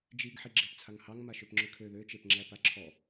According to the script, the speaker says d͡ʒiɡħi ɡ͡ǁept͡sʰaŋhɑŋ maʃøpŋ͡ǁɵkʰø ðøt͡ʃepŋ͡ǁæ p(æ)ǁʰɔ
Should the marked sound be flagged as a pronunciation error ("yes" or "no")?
yes